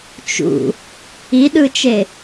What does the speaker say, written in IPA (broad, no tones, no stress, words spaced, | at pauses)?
t͡ʃṵ | iɗɯt͡ʃe